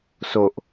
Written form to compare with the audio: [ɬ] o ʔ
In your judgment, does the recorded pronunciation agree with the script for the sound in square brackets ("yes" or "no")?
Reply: no